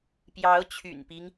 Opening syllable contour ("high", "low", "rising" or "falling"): rising